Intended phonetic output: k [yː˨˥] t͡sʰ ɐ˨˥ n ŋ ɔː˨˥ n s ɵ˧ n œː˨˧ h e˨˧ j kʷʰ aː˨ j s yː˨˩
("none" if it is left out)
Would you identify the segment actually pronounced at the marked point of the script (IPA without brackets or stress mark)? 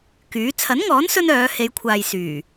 yː˨˥